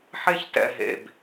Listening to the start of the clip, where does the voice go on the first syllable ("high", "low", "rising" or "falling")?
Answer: high